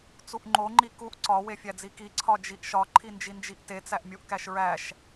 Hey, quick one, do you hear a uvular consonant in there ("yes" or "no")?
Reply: no